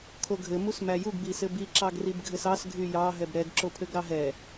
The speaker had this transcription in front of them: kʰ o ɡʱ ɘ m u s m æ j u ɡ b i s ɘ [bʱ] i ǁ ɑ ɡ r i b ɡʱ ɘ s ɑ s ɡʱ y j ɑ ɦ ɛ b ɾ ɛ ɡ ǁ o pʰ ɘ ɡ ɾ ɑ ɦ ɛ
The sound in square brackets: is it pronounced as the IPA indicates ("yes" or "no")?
no